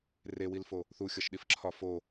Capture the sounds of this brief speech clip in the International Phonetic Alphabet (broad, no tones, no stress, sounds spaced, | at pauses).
r e w i l f o | θ u xʲ ɒ ʃ ɗ i f ǁʰ ɒ f o